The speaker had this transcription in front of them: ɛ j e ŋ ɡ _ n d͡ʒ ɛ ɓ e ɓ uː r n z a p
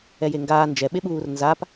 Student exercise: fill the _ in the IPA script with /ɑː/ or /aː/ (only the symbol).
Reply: aː